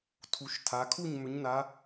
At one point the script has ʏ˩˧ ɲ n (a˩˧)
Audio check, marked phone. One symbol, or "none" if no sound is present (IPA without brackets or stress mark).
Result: a˩˧